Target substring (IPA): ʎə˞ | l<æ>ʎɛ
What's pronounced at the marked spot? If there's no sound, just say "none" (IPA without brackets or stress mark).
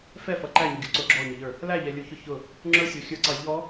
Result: æ